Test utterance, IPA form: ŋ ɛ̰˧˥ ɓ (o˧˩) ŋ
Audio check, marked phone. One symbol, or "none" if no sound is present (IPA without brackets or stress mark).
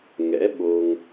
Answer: o˧